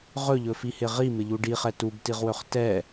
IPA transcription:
ʁ ɵ ʎ ɵ f i h ɪ ʁ i m ɪ ʎ u ɖ i χ ɛ t u b t i ʁ w ɵ χ t ɛ

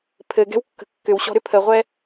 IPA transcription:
pʰ ɘ ɡ ɛ̤ w kː ə̤ kː ʏ w ɕ ɔ̤ ɾ ʏ pʰ ə ʁʷ ɛ

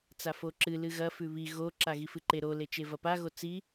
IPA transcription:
t͡s a f o ǁ ɨ l ɨ ɣ ɐ f ʉ β i ɣ o ǁ a ɣ i f ɨ ǃ e ɾ o l e t͡ʃ e v ɐ p a ɣ o t͡s i

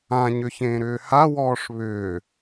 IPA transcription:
ã ɲ ʏ ç ẽː ɾ ʏː h a w ɔː ʂ β ʏː

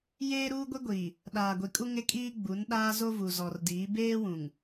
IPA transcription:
j eː˦ ɾ uː˦ ɡʷ i˦ ɡʷ iː˨ | ɗ aː˨ ɡʷ i˨ kʼ u˦ ŋ ɪ˦ kʼ iː˦ ɡ͡b u˨˦ n ɗ aː˦ z o˦ v u˨ z ɔ˨ r d iː˨˦ b eː˦ w ũ˨ ŋ

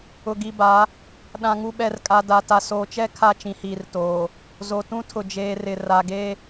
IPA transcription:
ʊ˨ ɡ i˨ b a˨˦ | ɗ ã˨ ŋ u˨ ɓ ɛ˨ r kʼ a˨ d a˨ t a˨ s oː˨ t͡ʃ ɛ˦ kʰ a˦˨ t͡ʃ ĩ˨ h iː˨ r t oː˨ | z o˨ t ũ˦ tʰ ʊ˨ d͡ʒ eː˨ r ɪ˨ r a˨ ɡ e˦

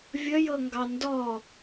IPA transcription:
vʲ ə j ɤ ŋ ɡ ɑ n d ɔ

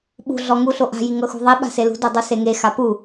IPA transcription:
ɓ ṳ ɮ ɔ ŋ u ɬ o ʔ a̤ j i ŋ ɤ x ṳ ðˤ i ɓ a̤ s e l ṳ d o dˤ u s e ŋ e x a p u

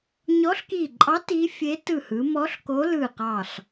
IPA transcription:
ɲ ɔ˧˥ ɬ k i˧˩ ǃʼ ɑ˧˥ t i˧˥ fʲ e˧˥ t ɯ˧˩ h ɯ˩˧ m ɔ˧˥ ɬ k o˧˥ l ɯ˧˩ q ɑ˧˩ ɬ

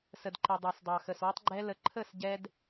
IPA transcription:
s ə˨ d ǃ ɛ˨ dˤ ɑ˨ s dˤ ɑ˨ x ə˨ s w ə˦ tˤ ɡ͡ǃ ɛ˦ l ə˧ ǃʰ ə˦˨ s ɟ ɛ˦ d

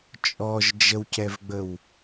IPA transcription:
t͡ʃʼ ɔ ʒ d͡ʒ ə w c ɛ v ɡ͡b ə w

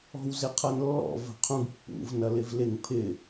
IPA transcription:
ɔ̤ w z ɪ qʰ ɐ n lː ɔ̰ v ə̤ qʰ ũ ɡ pː ṵ v n ɐ l ɪ v l ɪ ŋ pʰ ɪ

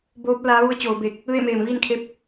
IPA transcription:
b oː˧˥ p̚ l aː˧˥ ʋ u˧˥ ə̯ t͡ɕ oː˩˧ b e˧˩ k̚ | ʋ e˥˨ m eː˧˩ m ʋ iː˥˨ n kʰ e˧˥ p̚

